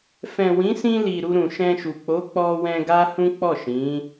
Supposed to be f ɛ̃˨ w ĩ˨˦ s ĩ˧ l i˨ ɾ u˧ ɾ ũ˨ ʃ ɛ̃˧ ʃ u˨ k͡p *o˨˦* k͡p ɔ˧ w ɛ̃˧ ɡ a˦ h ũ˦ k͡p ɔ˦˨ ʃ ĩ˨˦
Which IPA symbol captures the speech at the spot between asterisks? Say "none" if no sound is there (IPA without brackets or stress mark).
o˨˦